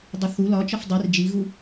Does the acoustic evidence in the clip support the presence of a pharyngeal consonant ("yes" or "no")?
no